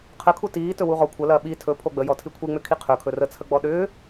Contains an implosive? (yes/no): yes